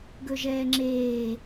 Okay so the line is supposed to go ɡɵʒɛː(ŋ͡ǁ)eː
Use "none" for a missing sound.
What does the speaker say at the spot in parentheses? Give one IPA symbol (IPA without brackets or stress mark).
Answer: ŋ͡ǁ